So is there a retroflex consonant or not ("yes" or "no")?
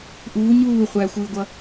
no